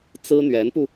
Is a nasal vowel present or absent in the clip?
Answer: absent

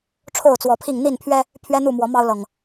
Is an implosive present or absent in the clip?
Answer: absent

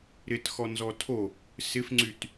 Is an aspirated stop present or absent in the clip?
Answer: present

